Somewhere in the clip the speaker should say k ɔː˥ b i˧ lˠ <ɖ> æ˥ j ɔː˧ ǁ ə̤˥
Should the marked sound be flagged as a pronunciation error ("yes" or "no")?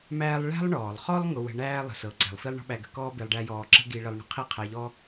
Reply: no